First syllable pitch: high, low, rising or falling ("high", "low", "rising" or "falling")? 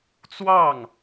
falling